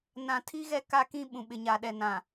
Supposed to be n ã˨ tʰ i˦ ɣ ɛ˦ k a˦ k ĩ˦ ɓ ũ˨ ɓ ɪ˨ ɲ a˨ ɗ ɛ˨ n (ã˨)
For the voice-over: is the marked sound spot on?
yes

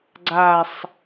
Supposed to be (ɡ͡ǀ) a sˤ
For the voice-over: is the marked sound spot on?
yes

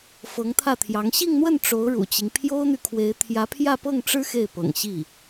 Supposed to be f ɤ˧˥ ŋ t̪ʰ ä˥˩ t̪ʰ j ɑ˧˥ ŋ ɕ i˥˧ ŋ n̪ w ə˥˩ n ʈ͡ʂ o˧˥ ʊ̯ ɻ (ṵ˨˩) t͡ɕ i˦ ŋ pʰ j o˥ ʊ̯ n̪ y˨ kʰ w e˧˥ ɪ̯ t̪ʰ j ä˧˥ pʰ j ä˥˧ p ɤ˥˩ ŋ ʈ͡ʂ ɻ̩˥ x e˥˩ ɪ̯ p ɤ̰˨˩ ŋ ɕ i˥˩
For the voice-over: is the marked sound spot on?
yes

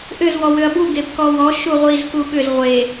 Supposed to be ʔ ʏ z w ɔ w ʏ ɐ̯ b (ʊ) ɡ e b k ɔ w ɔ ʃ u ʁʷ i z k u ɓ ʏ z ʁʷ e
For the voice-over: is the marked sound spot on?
no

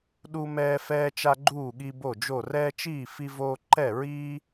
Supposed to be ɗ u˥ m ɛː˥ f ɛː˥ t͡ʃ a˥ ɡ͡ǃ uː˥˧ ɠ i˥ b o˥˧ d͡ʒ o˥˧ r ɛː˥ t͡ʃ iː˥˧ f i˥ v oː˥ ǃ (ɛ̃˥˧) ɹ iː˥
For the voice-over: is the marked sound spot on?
no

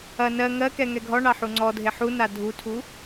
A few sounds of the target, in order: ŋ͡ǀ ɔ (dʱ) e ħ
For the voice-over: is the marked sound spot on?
yes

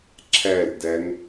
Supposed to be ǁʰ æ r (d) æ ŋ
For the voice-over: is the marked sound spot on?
yes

